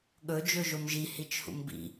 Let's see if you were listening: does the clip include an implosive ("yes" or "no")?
yes